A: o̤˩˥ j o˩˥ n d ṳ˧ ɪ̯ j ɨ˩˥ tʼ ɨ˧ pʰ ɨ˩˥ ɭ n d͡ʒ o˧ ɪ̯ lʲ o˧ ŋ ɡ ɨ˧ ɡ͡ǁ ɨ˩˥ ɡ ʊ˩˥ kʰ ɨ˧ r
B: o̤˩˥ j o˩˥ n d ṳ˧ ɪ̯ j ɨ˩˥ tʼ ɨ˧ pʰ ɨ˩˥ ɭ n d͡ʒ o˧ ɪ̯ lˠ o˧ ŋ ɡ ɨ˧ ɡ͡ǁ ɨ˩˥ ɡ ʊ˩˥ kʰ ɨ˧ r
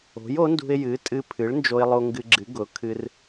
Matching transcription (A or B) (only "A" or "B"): B